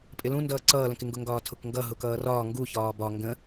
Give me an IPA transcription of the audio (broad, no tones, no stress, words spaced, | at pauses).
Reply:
pʼɪlũndʌː ǀʌːlə̃kɪŋɡʊ ŋɡɒːtʰʊkŋɡʌ ɦʊkʌːrɒː ŋɡu çɒːbɒ ŋɡə̃